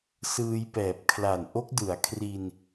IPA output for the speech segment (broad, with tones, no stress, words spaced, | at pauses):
sɯː˧jpɛː˨˩p̚ kʰla˨˩nʔo˦˥k̚dɯ˩˦a̯kʰri˧n